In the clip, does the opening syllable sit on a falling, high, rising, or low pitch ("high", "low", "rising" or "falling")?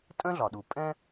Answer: high